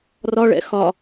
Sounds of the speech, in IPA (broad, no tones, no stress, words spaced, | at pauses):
rɒɭɛ̰ xɒ